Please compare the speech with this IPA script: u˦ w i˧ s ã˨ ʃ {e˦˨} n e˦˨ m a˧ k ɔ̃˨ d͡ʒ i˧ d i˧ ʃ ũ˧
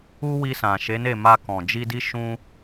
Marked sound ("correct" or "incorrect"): incorrect